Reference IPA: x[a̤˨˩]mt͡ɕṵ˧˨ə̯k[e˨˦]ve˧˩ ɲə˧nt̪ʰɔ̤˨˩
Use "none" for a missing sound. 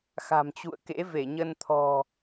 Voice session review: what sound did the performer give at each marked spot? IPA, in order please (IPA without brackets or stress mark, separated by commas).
a̤˨˩, ḛ˧˥